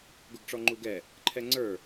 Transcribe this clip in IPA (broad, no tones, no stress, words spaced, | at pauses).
ɡʊɡʈ͡ʂɔŋ͡ǃuɡɛ | ǃʰɛŋ͡ǀə˞